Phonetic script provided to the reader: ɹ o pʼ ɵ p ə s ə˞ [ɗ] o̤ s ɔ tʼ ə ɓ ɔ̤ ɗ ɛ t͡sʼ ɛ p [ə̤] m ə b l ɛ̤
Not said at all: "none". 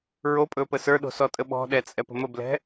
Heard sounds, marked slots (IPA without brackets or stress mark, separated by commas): ɗ, ə̤